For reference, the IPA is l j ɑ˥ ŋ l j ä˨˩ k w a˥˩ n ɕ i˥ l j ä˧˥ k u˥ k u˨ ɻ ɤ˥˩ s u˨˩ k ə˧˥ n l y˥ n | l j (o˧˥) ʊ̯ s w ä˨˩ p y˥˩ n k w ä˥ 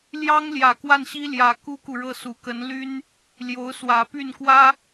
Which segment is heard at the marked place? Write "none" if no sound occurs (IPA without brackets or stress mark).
o˧˥